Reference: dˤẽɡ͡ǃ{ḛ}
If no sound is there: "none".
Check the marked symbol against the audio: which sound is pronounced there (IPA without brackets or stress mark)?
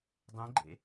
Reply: ḛ